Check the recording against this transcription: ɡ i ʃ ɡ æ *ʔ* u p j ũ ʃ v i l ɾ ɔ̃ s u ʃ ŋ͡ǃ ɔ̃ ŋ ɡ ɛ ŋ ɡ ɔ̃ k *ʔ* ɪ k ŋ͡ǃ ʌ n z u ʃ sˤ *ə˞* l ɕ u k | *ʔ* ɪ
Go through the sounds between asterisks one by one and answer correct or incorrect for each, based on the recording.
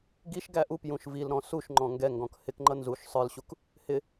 correct, incorrect, correct, incorrect

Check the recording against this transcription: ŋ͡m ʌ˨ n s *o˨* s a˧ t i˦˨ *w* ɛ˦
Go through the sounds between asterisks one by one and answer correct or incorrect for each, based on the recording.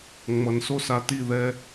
incorrect, incorrect

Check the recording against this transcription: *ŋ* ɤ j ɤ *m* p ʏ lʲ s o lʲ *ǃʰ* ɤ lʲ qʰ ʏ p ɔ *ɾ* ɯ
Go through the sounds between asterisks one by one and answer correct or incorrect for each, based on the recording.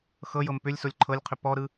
incorrect, correct, correct, correct

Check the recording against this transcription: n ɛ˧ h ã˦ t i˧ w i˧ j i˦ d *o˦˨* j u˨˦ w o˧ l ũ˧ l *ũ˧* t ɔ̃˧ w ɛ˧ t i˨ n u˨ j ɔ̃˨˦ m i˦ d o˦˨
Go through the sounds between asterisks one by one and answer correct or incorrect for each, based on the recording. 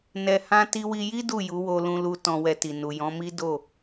incorrect, incorrect

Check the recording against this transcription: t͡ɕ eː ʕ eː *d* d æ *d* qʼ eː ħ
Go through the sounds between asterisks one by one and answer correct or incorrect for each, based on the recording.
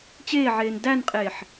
incorrect, incorrect

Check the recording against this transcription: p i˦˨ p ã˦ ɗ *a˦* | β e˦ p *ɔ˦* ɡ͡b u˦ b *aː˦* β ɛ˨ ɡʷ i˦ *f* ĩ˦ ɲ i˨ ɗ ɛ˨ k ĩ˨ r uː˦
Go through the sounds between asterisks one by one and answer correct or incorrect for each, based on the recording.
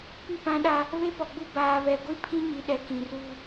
correct, incorrect, incorrect, incorrect

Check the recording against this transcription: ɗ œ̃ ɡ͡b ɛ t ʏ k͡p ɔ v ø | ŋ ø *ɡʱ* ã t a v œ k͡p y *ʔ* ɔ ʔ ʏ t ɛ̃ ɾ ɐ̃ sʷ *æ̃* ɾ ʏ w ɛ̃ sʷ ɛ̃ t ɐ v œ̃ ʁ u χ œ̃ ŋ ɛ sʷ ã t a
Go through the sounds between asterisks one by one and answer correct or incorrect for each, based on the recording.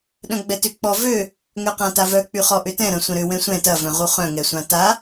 incorrect, incorrect, incorrect

